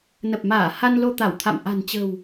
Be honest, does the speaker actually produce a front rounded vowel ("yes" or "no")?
no